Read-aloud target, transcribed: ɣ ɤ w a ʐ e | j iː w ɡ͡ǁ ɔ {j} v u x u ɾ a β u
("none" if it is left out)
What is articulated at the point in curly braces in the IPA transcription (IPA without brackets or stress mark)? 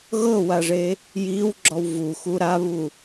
w